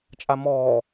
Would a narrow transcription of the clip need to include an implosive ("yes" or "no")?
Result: no